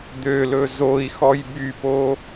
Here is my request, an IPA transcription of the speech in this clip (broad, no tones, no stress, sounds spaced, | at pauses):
d̪ ø l ɵ z o i̯ x ɔ j b y p o